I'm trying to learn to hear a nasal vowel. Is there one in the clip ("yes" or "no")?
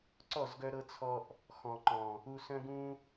yes